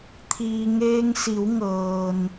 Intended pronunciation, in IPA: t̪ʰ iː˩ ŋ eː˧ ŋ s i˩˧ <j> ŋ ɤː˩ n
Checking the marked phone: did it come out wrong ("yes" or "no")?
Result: yes